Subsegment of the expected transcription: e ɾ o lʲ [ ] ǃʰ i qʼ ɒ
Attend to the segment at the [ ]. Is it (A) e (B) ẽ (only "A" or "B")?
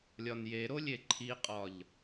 A